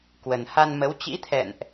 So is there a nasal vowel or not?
no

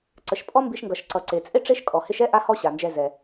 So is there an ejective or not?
yes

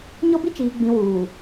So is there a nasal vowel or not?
yes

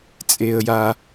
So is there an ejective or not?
yes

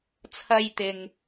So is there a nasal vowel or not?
no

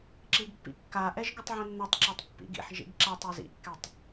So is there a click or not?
yes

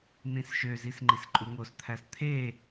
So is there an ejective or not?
yes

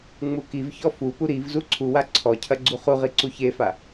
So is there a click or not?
yes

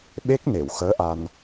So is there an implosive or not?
yes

